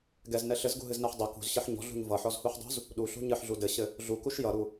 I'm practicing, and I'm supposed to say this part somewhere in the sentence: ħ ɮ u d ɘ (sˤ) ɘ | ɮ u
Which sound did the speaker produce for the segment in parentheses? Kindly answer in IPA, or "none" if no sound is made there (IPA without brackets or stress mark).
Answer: ɕ